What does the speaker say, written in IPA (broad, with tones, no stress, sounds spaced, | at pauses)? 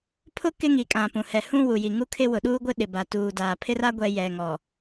pʰ ʊ˦ k ɪ˦ ŋ i˨ kʼ ã˨ p ũ˨ h ɛ˨ h ũ˦ w u˨ j i˨ ŋ u˦ kʰ ɪ˦ w ʊ˨ ɗ uː˦ ɡʷ ɪ˦ ɗ ɪ˨ b a˨ t uː˨ d aː˨ pʰ ɪ˦ r a˦ ɡʷ ɛ˨ j ɛ˨ ŋ ɔ˨